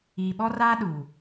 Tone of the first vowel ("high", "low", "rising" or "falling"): low